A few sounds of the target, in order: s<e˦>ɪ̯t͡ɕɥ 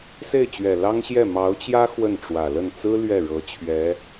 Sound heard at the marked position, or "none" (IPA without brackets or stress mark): e˥˩